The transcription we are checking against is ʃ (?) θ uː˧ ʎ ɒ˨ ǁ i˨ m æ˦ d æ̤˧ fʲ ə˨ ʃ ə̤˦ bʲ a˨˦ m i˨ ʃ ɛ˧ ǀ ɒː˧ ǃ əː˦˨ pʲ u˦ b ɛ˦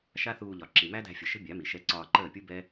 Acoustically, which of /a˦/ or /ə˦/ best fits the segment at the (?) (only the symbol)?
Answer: a˦